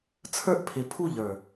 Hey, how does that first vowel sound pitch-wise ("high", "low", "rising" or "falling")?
high